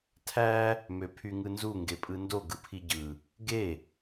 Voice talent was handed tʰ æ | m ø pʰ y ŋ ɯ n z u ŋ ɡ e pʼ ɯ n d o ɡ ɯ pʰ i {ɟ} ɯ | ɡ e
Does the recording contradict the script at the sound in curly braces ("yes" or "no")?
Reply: no